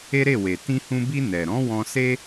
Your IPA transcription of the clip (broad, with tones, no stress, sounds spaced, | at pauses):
e˦ ɾ e˦˨ w e˨ t ĩ˧ h ũ˧ b i˧ n ɛ˨ ɾ ɔ̃˨˦ w ɔ̃˧ s e˦